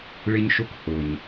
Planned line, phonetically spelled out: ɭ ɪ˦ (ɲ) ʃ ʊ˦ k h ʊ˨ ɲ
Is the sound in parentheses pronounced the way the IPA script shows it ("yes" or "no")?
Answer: yes